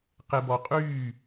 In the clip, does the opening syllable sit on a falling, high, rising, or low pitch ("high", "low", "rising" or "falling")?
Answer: low